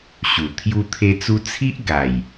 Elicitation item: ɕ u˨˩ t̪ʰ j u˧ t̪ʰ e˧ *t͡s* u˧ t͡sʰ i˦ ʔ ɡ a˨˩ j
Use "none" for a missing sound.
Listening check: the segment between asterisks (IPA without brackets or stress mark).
t͡s